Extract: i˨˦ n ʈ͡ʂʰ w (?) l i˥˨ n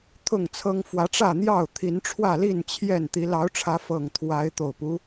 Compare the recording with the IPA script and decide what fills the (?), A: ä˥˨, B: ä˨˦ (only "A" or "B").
A